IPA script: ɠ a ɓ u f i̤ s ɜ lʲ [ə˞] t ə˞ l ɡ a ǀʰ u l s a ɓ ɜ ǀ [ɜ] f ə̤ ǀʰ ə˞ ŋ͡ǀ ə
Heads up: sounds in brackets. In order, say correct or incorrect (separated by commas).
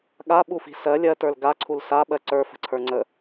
incorrect, incorrect